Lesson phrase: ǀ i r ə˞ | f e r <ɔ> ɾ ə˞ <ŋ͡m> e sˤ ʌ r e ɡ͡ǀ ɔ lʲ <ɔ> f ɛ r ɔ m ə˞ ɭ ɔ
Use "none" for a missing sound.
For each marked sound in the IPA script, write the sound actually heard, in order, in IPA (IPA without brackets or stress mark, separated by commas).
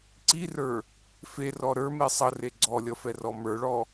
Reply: ɔ, m, ʌ